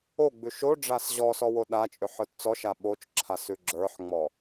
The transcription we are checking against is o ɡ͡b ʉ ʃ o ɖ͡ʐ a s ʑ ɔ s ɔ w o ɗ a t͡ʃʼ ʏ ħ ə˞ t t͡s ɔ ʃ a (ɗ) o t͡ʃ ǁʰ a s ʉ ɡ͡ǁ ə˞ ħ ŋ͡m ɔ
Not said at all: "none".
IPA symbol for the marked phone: ɓ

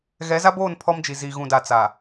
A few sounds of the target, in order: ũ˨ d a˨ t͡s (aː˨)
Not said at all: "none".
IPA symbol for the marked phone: aː˨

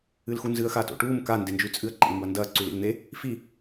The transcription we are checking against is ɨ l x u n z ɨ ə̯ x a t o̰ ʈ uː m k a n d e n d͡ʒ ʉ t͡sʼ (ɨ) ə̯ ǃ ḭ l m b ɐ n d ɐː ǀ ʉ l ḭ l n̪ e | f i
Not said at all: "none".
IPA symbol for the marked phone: ɨ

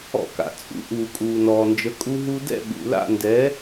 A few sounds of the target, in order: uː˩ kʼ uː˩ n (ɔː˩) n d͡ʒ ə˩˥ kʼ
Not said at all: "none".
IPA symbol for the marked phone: ɔː˩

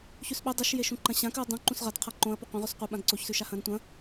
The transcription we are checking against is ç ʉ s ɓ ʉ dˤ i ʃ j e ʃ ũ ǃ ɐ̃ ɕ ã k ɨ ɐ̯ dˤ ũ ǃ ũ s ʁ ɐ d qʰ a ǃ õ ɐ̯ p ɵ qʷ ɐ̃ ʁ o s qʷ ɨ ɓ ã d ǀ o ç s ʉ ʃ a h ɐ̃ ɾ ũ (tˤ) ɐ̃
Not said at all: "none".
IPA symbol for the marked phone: tʷ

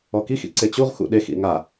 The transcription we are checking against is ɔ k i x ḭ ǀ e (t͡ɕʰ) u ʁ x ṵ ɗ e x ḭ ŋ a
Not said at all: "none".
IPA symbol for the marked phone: t͡ɕ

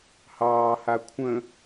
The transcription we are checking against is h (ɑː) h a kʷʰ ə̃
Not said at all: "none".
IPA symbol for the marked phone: ɑː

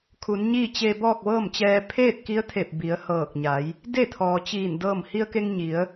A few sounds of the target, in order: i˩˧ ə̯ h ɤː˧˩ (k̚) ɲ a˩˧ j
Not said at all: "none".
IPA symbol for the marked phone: k̚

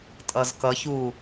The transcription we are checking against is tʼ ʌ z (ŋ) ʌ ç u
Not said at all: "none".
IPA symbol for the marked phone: k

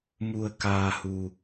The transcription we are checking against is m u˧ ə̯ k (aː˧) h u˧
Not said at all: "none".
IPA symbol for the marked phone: aː˧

